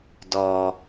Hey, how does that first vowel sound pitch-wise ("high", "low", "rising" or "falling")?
low